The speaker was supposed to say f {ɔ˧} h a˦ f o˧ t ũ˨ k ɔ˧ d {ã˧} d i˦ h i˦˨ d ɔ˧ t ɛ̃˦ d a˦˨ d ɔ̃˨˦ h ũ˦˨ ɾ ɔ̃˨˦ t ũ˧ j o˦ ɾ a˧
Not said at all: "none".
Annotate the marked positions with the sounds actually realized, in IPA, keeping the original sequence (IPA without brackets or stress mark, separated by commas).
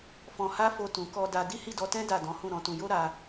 ɔ̃˧, a˧